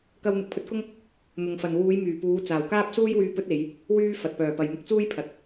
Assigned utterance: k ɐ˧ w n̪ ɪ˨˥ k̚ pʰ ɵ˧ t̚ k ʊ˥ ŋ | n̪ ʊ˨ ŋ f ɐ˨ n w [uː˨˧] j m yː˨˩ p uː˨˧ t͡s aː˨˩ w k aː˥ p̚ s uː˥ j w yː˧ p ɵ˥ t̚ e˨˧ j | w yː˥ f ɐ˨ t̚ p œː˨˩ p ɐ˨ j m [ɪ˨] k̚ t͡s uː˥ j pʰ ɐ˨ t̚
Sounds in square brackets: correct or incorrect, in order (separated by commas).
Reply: correct, incorrect